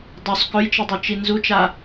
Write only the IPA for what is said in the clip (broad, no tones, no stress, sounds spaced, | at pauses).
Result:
dˤ u sˤ k ɵ j t͡ʃ ɨ dˤ ʉ t͡ʃ i n z u t͡ʃ a